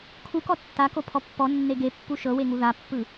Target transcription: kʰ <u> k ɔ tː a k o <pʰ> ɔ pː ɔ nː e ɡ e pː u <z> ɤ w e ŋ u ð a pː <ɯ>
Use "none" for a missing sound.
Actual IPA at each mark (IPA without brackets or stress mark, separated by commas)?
u, pʰ, ʃ, ɯ